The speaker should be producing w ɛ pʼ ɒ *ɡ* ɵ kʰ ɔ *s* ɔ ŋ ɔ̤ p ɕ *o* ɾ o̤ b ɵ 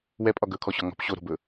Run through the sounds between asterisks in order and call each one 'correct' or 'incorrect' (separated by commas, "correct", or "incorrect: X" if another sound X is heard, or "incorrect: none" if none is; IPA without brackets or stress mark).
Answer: correct, incorrect: ɕ, correct